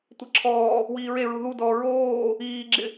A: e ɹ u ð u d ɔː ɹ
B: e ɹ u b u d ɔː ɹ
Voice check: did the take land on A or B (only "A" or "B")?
A